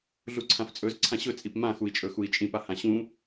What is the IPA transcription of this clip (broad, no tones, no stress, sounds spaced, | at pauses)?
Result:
ɮ u ǀʰ ã f t͡sʼ ɵ z ǀʰ ã ɕ ɵ t͡sʼ i p m ã x u i̯ t͡ʃʼ ɵ x u i̯ t͡ʃʼ ĩ p a h ã ɕ ũ